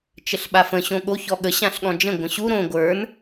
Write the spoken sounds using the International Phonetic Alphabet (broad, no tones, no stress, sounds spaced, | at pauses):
t͡ʃ ə ɬ ɓ a f ə̃ ɕ õ ɠ o ç ɔ ɠ ə ɕ ã ɬ ɠ ɔ̃ d͡ʒ ə̃ ɡʷ ə̃ ɕ u ɾ õ ɡʷ ə˞ n